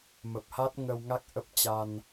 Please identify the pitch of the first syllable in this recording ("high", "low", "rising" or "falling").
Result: low